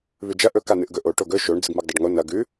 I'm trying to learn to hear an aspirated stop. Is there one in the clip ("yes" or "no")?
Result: no